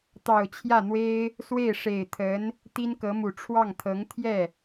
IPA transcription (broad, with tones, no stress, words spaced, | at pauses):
t̪ɑ˨˩ʊ̯t͡ɕʰjä˥˩n̪we˥ɪ̯ | swe˥˩ɪ̯ʂe˨˩ɪ̯t̪ʰə˧˥n | t̪i˥nkɤ˧˥mu˨˩ ʈ͡ʂʰwɑ˥˩ŋt̪ʰɤ˧˥ŋ t̪ʰjɛ˥˩